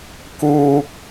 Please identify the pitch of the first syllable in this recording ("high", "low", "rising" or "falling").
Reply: low